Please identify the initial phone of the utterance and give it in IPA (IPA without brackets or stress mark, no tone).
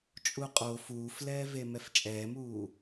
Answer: t͡ʃʼ